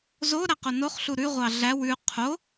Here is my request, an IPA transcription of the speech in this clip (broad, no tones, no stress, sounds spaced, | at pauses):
z o ɾ æ q o n o χ ɬ u ɾ ʉ ʁʷ ɑ ɮ æ w ʉ qʰ o